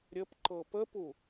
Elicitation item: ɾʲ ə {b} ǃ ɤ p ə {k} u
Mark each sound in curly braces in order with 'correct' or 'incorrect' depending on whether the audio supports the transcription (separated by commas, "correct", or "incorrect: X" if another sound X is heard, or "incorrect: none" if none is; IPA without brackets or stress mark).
incorrect: p, incorrect: p